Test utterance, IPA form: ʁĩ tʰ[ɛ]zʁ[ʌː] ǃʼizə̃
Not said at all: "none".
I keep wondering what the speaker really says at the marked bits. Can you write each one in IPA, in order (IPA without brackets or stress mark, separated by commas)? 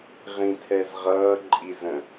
ɛ, ʌː